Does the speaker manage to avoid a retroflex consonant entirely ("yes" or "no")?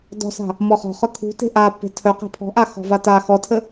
yes